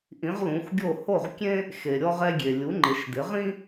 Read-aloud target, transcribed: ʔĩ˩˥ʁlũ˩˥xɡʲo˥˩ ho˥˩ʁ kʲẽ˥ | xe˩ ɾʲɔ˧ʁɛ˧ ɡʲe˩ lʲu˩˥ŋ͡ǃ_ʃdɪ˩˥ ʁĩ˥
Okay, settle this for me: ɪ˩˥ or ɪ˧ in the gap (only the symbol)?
ɪ˩˥